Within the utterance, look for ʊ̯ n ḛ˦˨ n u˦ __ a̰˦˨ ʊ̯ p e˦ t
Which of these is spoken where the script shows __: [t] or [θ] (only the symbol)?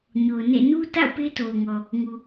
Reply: t